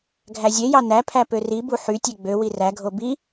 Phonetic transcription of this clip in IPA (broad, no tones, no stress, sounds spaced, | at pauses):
ɡʱ æ zʲ e j ɑ n æ pʰ æ p ø r i b u ħ y tʲ e ɡ͡b ø w i r æ ɡʱ o b i